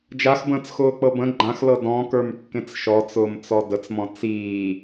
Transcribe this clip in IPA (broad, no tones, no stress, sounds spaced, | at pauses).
d͡ʒ a x b ə̃ː t͡s x ʊː k͡p ɤ b ə̃ ɡ͡ǃ ã x l ɤ d ɔ̃ k ə˞ m kː ẽ t͡s ʃ ɔ t͡s ʊː m t͡s ɔ d ə t͡s m ɔ̃ t͡s iː